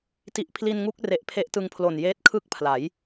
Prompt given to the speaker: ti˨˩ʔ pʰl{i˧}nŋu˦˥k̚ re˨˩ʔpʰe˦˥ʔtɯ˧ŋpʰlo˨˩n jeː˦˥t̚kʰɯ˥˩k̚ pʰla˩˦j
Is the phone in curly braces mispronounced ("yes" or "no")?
no